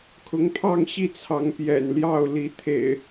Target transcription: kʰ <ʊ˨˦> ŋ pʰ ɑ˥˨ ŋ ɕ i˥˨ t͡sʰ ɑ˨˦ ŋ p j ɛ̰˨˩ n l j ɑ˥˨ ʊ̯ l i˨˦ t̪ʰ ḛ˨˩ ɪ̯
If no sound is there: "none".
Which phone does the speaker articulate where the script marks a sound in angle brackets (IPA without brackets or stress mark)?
ʊ˨˦